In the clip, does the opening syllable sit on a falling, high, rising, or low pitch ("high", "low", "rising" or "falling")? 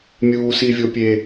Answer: high